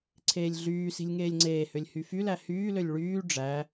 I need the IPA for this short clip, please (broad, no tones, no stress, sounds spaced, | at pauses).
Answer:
ǀʰ eː lʲ ɮ yː s i̤ lʲ ŋ eː lʲ ŋ͡ǀ eː h ø lʲ h y f y l æ h yː l ø lʲ ɭ yː ɖ͡ʐ æ